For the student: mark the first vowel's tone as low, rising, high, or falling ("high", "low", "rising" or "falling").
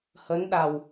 rising